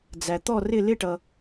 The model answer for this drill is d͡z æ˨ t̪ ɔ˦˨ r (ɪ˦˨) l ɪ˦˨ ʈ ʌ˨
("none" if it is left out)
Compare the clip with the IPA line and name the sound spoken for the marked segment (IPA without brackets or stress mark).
ɪ˦˨